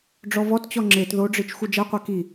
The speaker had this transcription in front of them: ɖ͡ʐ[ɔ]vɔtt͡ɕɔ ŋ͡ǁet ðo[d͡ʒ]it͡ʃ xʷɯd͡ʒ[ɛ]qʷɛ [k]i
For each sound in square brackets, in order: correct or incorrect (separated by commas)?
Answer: correct, incorrect, correct, correct